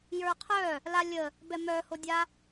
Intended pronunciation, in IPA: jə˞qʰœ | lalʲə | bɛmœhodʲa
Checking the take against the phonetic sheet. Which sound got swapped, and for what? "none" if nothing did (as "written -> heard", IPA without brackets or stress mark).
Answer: none